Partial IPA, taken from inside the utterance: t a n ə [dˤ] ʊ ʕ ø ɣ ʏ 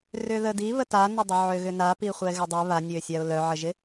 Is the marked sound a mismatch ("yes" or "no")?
no